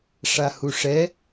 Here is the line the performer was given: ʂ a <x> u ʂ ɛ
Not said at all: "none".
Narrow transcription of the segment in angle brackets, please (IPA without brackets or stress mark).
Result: h